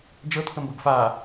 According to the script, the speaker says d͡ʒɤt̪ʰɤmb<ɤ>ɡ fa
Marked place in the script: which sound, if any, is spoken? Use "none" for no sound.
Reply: ɤ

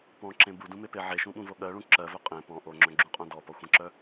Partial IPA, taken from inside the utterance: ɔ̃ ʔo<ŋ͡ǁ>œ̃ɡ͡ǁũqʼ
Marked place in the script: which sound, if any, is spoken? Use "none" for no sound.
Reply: ŋ͡ǁ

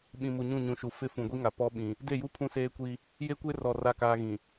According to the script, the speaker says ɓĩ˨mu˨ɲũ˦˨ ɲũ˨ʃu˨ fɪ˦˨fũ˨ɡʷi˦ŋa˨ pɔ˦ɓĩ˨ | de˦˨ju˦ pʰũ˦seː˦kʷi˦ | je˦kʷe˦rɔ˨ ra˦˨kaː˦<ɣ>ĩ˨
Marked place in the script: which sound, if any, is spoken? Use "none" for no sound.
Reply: ɣ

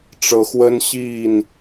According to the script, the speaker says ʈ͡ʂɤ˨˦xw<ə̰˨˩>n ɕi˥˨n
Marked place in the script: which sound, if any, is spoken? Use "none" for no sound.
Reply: ə˦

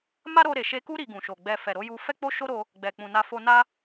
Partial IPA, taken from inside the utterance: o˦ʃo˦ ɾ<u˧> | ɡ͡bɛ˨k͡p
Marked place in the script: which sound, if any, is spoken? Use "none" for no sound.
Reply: o˧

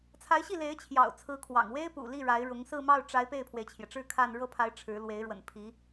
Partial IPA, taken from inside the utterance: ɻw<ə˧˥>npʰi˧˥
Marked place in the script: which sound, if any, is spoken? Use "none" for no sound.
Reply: ə̰˨˩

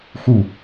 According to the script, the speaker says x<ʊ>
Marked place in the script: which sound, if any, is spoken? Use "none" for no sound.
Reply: u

